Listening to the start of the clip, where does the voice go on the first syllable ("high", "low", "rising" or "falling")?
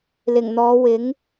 low